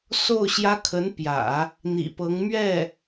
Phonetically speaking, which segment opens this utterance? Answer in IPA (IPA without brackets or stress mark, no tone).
s